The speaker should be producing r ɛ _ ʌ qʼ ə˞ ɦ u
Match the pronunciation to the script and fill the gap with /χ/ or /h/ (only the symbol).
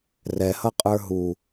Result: h